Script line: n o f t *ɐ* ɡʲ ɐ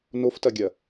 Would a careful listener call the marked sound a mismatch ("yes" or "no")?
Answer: no